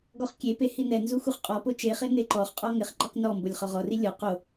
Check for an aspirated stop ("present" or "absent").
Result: absent